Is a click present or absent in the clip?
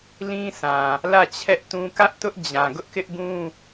absent